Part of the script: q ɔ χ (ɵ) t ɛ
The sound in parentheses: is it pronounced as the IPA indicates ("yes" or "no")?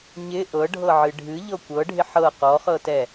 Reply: no